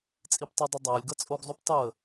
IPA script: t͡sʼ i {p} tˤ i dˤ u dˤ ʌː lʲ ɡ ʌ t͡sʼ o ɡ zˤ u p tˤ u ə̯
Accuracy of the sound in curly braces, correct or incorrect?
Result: correct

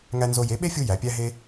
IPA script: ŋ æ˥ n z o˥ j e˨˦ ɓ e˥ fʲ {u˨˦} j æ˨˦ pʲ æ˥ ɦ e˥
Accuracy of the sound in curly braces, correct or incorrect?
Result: incorrect: u˥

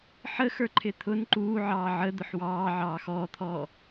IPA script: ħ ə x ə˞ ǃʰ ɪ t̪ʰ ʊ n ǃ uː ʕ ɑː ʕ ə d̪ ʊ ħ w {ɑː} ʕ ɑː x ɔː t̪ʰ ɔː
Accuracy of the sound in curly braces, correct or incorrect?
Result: correct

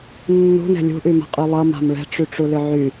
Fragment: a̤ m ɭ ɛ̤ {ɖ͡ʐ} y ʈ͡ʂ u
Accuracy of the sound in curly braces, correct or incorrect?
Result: incorrect: ʈ͡ʂ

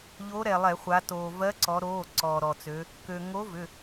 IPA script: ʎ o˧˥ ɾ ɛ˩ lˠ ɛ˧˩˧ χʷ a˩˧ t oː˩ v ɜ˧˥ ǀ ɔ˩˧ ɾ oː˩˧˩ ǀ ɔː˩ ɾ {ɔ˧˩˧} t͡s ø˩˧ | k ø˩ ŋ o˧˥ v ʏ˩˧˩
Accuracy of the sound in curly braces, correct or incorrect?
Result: incorrect: ɔ˩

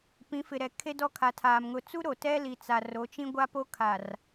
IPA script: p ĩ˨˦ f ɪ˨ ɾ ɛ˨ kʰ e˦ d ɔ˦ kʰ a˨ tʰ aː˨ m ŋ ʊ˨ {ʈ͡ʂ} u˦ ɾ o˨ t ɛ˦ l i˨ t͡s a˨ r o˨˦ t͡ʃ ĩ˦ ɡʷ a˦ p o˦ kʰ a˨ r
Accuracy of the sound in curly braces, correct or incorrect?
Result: incorrect: t͡s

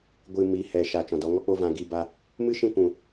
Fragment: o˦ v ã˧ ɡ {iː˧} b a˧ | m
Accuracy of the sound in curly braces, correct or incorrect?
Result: correct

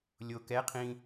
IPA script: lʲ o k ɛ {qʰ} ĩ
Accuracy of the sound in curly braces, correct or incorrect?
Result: correct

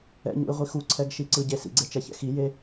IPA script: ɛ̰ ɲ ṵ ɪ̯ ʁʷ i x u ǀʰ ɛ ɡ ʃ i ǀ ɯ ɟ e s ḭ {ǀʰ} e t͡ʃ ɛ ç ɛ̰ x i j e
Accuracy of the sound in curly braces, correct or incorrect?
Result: incorrect: ɡ͡ǀ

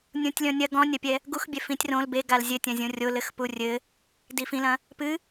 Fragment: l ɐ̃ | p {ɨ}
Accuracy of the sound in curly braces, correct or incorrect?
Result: correct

